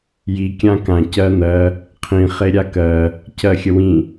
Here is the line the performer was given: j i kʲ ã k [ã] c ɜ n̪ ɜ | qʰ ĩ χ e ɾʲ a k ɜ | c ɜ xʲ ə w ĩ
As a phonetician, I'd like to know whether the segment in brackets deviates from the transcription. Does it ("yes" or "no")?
no